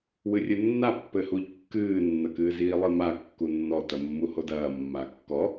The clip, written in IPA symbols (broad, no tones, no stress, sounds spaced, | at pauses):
w ɨ rʲ ɘ nː a pː ɘ h u ʎ kː ɨː nː ɐ k ɨː z iː lˠ ɨ m a kː u nː ɔ t ɐ mː u h o d ɐː mː a kː ɔ